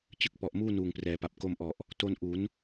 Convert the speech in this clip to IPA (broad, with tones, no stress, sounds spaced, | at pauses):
t͡ɕ ɯ˥˩ k̚ p ɔ˨˩ ʔ m uː˥˩ n uː˨˩ ŋ p r ɛː˩˦ p a˨˩ p̚ k o˧ m ʔ ɔ˨˩ ʔ | t o˧ n ʔ u˩˦ n